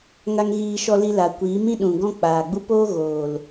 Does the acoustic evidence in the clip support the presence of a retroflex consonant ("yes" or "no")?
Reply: no